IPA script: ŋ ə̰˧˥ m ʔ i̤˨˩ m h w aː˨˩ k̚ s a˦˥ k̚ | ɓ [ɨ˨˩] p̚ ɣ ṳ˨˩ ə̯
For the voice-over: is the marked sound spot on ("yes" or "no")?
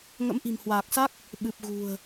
yes